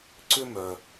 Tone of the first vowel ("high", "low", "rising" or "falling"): high